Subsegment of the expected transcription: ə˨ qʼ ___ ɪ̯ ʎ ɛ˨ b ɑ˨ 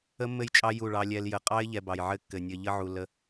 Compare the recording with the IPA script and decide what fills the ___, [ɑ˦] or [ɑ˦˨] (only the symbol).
ɑ˦